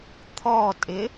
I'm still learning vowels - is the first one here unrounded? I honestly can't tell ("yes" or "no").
no